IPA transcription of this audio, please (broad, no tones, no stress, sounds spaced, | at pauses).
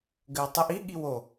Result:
ɡ ɘ w tˤ ɘ ʔ i ɠ i w o